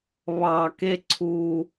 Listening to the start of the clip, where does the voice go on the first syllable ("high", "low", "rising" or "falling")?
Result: low